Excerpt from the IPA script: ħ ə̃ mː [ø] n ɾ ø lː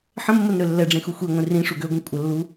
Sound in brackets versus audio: incorrect: ə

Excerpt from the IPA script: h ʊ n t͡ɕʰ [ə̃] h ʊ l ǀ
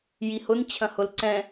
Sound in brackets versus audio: incorrect: ɐ̃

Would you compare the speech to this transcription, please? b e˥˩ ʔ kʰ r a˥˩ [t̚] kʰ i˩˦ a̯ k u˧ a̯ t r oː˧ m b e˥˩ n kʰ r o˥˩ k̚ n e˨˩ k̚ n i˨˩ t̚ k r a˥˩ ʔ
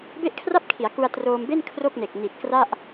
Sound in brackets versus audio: incorrect: p̚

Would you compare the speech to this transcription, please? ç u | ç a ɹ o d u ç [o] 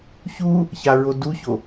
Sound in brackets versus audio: correct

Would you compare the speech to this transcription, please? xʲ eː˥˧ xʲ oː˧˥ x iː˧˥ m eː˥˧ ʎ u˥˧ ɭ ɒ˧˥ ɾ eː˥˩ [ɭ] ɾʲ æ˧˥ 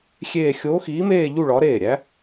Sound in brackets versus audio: incorrect: none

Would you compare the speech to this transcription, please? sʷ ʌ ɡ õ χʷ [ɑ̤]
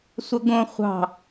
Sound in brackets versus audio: correct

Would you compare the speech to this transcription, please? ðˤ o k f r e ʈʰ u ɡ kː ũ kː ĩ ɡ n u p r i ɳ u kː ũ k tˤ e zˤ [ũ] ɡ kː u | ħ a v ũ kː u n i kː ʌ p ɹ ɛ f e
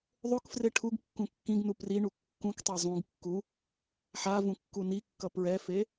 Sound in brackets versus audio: correct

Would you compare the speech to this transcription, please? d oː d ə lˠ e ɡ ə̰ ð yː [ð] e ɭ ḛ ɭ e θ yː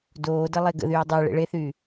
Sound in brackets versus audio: incorrect: dˤ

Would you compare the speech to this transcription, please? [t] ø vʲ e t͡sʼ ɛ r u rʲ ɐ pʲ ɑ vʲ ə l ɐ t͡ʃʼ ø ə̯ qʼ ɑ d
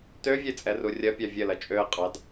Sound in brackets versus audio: correct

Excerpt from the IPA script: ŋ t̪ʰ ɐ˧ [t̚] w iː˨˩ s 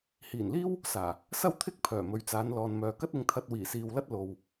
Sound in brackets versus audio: correct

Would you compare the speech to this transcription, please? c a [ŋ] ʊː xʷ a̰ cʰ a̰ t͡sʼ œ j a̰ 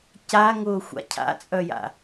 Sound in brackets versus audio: correct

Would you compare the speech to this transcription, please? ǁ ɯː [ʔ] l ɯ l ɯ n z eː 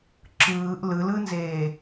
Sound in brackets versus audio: correct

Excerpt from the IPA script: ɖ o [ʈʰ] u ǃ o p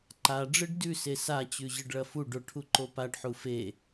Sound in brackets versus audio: correct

